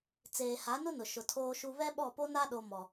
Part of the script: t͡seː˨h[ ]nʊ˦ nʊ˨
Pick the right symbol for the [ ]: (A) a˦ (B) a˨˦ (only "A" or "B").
B